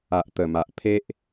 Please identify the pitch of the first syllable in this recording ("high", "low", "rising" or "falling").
low